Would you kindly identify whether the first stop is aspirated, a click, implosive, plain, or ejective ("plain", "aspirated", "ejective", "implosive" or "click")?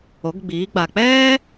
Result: plain